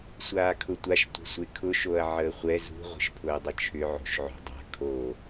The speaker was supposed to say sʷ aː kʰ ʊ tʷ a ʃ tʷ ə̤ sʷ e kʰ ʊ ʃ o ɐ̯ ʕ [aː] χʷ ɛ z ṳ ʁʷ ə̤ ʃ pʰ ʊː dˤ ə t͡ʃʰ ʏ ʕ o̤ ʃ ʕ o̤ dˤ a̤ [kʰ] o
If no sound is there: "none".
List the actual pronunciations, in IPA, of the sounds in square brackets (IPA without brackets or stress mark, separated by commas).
əː, kʰ